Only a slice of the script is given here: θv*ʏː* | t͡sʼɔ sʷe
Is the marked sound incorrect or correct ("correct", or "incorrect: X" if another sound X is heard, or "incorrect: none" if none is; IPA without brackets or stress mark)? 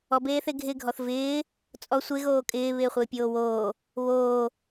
incorrect: ɪː